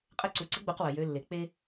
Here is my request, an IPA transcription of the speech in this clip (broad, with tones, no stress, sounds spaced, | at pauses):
qʼ ɘ˧˥ ǀ u˨ ǀ ə˧˥ ɡ͡b u˧˥ q w ə˨ j ø˧˥ lː e˨ k͡p e˥